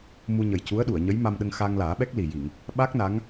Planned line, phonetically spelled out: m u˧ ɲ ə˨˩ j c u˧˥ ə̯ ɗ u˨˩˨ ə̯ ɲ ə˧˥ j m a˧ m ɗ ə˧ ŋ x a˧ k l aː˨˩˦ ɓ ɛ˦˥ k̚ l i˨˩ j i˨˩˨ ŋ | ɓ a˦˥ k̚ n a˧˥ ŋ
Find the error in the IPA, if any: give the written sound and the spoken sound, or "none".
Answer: k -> ŋ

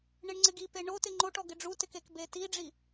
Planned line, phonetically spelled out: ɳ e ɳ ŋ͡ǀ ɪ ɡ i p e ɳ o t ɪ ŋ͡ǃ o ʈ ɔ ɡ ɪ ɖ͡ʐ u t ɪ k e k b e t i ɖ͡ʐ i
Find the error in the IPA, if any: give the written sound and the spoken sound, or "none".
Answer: none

